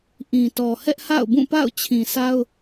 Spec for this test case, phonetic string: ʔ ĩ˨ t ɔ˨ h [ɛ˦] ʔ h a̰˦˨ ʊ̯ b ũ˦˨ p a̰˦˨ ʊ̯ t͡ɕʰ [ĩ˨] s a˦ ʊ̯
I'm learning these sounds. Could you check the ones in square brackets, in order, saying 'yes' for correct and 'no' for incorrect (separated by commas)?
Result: yes, yes